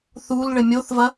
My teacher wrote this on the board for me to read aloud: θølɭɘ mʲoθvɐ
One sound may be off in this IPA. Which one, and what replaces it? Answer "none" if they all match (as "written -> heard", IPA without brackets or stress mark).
ø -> u